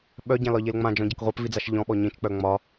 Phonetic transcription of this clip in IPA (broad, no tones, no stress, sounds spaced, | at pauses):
ɓ œ ɟ ã l ɒ ʎ e l ŋ͡m ã d͡ʒ ɔ̃ ɟ a k ʁʷ a p v i d͡z a ʃ ʎ ɔ̃ ɓ ɔ ɲ ĩ t͡ʃ k͡p œ ŋ͡m ɒ